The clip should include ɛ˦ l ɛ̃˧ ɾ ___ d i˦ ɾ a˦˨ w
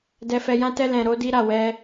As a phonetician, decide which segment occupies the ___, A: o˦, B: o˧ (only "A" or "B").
A